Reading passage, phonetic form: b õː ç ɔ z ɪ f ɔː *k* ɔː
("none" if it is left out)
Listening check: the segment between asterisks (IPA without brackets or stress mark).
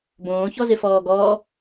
ɡ